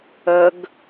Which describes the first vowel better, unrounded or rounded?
unrounded